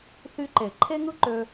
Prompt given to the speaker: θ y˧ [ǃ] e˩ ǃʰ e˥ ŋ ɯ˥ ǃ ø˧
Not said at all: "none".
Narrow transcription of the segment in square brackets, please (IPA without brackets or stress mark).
ǃ